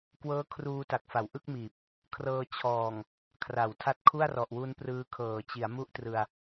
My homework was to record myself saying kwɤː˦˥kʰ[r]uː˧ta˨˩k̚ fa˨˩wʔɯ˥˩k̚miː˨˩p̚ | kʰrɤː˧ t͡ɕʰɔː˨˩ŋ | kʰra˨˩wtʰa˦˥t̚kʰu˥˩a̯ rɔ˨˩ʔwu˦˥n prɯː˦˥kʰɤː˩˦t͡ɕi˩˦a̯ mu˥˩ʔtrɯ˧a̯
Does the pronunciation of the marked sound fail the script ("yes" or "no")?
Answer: no